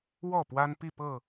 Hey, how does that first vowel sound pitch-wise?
falling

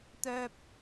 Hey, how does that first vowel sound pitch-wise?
high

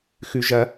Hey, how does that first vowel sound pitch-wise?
low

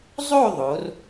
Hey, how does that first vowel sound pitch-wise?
falling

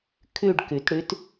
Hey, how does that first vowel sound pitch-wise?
falling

